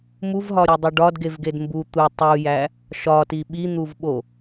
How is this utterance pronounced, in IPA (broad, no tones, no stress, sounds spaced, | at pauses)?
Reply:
m u v ɦ ɒ ɾʲ u dˤ u ɖ ɒ d ɡ e v ɡ e d m b u t̪ u tˤ u j æ | ʃ ɒ t i ɓ i n̪ u v ɓ o